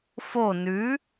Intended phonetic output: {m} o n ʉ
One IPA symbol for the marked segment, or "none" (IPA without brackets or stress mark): f